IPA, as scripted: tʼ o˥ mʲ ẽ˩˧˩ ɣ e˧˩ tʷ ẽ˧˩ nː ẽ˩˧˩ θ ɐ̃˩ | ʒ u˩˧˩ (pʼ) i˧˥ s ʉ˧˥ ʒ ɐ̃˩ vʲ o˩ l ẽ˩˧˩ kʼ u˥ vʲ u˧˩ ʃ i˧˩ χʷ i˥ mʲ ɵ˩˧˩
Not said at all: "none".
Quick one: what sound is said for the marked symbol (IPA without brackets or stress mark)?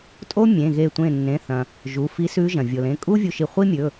f